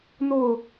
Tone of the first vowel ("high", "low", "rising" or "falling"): falling